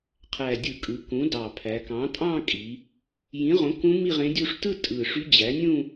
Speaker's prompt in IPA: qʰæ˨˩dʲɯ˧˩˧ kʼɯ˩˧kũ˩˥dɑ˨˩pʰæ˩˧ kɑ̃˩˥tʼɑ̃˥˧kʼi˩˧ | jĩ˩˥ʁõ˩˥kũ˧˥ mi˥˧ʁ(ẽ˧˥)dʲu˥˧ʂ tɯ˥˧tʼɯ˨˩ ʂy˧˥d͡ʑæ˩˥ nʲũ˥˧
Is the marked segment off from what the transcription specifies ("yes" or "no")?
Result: no